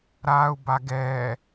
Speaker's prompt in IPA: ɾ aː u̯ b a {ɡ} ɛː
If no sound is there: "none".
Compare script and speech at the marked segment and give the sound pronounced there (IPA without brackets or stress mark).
ɡ